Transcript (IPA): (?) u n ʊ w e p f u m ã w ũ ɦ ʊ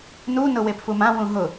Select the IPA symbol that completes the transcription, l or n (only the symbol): n